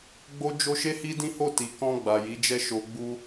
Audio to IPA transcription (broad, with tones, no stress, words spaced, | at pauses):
ɡ͡bo˦d͡ʒo˦ ʃe˦hi˦dĩ˦ho˦˨ ti˨kɔ̃˧ ɡ͡ba˨ji˨˦d͡ʒɛ˦ ʃo˧ ɡ͡bu˦